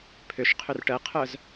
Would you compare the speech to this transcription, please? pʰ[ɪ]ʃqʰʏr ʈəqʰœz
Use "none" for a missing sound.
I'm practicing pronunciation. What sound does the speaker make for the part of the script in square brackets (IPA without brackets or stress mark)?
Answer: ʏ